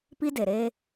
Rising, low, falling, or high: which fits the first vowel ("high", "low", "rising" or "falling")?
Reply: high